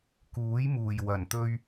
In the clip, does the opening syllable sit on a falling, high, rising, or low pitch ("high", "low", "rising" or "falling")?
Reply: rising